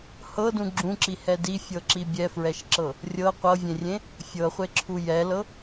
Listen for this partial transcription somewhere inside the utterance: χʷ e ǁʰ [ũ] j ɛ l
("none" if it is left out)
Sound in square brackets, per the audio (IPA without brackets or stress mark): u